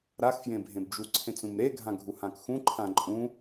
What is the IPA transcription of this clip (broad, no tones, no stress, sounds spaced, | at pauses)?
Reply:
ɾ a x f j ẽ bʱ ẽ b d͡ʒ u ǀʰ ẽ t͡s ũ m ɾ e ɡʱ ã ɡʱ u h ã k x ũ ǃʰ ã ǃʼ ũ